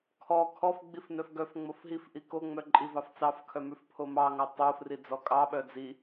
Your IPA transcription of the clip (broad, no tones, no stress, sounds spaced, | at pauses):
kʰ ɔ kʰ ɔ f ɡ͡b i f n œ f ɡ œ f ŋ͡m o f ɦ i f ʔ i k o ŋ͡m œ ǃʼ i v ɑ f t͡s ɑ f kʰ œ m ʉ f pʰ o m ɑ ŋ ɑ tˤ o f r i d͡z ɔ kʼ ɑ ɓ œ d͡z i